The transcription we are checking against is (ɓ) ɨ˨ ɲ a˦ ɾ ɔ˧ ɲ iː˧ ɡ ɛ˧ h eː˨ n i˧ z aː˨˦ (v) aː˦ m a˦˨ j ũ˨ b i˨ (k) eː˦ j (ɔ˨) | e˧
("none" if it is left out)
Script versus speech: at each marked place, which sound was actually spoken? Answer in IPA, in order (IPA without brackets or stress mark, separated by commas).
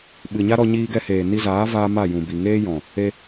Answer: ɓ, v, ŋ, ɔ̃˨